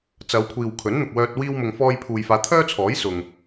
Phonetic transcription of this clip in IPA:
t͡s ɐ˨˧ w kʷʰ iː˨ w kʰ ɵ˨˥ n n̪ ʊ˨ k̚ w œː˧ t̚ w iː˥ w m ʊ˧ ŋ f ɔː˧ j pʰ uː˨ j f aː˨˧ t̪ʰ œː˥ t͡sʰ ɔː˨˥ j s ʊ˨ ŋ

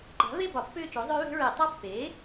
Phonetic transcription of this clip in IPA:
ǃ a̤˩˥ v e˥˧ b ɒ˩˥ pː ʏː˥˧ t͡ʃ o˩˥ zˤ ø˦˥ β e̤˦˥ ɹ e˧˩˧ tˤ ʌ˦˥ pː eː˩˥

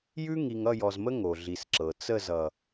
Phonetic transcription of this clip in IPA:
j ʉ˦ ŋ i˨ ŋ ʌ˦˨ j ɔ˨ z m ə˦ ŋ o˨ ɮ i˨ s ǁ ɤ˨ t͡s ə˦˨ z ʌ˨

